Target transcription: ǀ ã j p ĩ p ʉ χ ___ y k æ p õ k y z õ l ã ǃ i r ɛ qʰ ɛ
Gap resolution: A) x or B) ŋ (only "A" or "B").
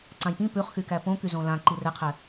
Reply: A